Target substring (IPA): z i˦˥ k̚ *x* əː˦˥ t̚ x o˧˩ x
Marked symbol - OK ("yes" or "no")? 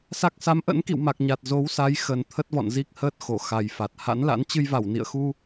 no